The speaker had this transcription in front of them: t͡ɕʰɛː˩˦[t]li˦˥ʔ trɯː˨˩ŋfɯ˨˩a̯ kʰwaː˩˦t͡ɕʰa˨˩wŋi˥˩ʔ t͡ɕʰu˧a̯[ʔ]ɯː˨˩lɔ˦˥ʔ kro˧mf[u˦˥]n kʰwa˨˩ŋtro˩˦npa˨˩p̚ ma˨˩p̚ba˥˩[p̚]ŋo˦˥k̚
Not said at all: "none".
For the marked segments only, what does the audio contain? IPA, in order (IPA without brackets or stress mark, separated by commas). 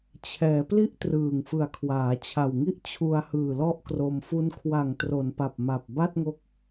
p, h, u˦˥, t̚